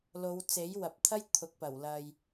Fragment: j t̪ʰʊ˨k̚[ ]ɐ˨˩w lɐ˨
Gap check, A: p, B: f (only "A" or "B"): A